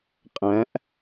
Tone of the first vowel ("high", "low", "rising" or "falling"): rising